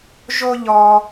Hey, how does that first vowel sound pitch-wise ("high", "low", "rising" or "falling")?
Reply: high